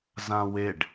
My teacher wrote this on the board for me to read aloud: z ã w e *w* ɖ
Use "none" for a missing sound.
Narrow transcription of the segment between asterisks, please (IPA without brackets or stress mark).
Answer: none